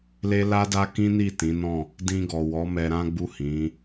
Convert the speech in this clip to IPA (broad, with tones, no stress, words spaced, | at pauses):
le˦la˦da˦ kĩ˦ni˦˨ tĩ˨˦nɔ̃˦˨ | dĩ˧ɡɔ˨wɔ˨˦ mɛ˧ɾã˦ɡ͡bu˦˨ hĩ˨˦